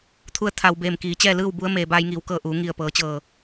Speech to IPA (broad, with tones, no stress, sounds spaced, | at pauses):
t̪ʰ u˧˥ ə̯ t̪ʰ a˩ w b eː˧˩ m k iː˩˧ t͡ɕ ɛː˥˨ l ɯː˥˨ w b u˧˥ ə̯ m eː˩ b aː˧ j ŋ iː˩˧ w k ɤː˧˩ ʔ uː˩˧ ŋ i˧˩ ə̯ p ɤː˩˧ t͡ɕ ɤː˧˩